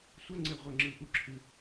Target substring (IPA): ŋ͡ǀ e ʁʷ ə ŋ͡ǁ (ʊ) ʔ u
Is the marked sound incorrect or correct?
incorrect